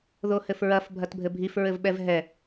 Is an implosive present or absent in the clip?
present